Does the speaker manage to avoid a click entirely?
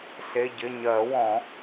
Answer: yes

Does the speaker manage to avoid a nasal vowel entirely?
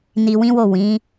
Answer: no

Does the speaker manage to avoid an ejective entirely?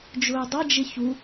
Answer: yes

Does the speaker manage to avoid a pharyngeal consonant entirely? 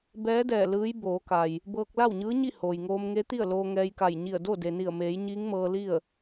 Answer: yes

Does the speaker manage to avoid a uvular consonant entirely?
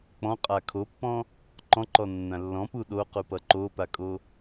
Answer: no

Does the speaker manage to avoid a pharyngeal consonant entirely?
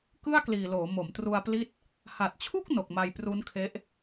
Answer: yes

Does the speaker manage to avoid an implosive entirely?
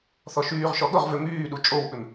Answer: no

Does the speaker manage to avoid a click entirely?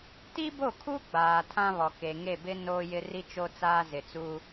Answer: yes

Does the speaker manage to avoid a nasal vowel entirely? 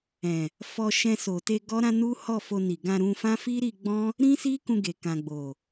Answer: no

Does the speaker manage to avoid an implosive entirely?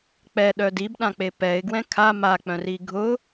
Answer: no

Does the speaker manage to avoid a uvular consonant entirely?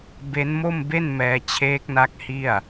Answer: yes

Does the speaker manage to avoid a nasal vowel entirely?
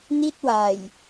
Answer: yes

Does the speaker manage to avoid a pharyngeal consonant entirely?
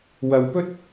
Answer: yes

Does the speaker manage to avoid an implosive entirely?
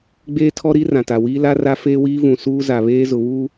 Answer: yes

